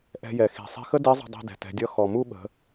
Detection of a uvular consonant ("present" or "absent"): absent